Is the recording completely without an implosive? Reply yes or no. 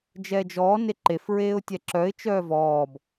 yes